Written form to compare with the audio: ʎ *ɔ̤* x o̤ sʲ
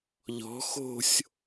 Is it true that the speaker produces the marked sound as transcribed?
yes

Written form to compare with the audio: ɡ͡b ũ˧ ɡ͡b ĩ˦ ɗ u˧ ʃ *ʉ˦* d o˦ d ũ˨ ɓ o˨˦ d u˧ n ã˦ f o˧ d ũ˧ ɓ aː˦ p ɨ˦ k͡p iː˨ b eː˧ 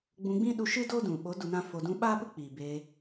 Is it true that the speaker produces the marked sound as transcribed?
no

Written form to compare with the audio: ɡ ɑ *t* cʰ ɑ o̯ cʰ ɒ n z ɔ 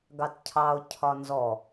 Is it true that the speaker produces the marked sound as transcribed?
yes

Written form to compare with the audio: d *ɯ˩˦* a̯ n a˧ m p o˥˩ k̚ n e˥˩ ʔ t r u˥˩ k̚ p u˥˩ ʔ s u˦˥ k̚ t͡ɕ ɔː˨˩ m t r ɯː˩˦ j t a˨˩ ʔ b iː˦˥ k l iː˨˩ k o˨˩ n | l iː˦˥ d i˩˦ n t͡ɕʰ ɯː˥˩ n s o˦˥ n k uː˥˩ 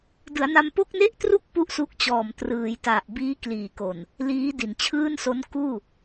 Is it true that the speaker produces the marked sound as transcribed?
yes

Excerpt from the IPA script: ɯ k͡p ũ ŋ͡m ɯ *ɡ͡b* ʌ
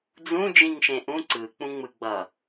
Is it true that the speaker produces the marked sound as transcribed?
yes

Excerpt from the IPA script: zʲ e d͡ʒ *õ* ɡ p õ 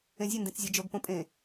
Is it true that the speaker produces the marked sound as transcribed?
no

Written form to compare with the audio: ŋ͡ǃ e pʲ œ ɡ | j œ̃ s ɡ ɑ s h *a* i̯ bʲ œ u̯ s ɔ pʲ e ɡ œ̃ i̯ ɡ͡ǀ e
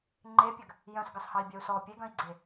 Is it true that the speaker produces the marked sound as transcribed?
no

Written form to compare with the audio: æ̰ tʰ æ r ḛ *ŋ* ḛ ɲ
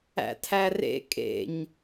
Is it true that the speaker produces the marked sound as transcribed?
no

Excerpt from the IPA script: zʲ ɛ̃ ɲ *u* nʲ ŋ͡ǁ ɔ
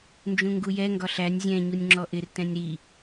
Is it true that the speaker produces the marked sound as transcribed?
yes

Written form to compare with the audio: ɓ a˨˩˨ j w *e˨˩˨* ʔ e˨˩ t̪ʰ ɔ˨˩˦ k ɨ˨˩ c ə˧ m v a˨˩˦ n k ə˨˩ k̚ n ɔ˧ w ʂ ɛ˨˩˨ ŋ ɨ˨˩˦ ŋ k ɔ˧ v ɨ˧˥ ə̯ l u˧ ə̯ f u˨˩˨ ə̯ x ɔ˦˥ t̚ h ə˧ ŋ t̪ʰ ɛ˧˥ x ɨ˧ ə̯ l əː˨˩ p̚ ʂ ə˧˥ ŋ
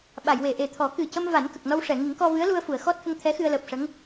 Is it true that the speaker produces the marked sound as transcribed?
yes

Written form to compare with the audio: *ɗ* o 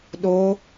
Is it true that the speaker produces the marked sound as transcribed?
yes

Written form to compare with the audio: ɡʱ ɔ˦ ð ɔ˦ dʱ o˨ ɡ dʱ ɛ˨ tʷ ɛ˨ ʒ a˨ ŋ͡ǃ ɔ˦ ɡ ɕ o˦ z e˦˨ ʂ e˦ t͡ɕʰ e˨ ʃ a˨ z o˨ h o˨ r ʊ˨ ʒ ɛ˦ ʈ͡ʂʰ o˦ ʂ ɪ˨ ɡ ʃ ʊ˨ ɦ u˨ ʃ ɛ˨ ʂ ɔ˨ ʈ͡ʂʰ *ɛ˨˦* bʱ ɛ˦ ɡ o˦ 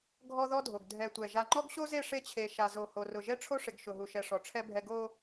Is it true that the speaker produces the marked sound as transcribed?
no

